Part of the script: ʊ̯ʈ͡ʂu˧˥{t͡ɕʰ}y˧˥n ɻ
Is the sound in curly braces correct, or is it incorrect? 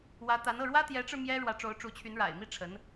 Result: correct